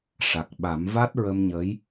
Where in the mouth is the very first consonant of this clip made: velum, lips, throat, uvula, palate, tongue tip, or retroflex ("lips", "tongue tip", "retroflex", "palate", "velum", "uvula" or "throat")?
retroflex